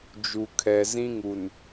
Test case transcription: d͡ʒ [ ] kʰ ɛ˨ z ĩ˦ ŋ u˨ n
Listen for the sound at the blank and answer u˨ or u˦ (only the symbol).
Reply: u˨